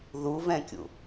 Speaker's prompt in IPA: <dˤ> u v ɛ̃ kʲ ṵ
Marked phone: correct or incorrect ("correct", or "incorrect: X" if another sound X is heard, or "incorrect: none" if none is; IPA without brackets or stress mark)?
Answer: incorrect: ð